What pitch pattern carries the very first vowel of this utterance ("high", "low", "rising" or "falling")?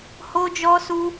high